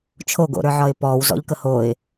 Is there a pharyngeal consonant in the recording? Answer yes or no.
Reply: yes